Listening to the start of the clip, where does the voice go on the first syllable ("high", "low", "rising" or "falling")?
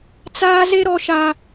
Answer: high